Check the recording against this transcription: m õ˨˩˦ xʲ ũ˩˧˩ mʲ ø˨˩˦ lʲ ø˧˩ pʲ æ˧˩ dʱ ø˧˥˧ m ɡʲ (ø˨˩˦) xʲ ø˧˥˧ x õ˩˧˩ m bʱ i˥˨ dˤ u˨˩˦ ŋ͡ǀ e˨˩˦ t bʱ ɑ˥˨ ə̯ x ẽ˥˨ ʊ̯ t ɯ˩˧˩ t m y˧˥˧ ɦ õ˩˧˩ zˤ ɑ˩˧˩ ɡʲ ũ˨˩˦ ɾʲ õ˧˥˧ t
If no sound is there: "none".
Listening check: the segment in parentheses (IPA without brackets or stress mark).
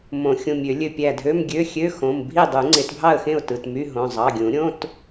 ø˧˥˧